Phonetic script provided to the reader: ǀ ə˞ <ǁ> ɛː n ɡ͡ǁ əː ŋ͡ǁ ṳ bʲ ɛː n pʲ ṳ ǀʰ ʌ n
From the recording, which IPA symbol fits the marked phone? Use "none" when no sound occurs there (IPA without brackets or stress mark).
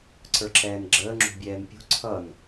ǁ